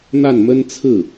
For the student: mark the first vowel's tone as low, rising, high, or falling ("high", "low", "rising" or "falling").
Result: falling